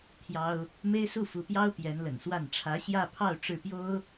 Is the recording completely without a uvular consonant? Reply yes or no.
yes